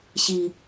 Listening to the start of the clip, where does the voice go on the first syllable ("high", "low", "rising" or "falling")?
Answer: low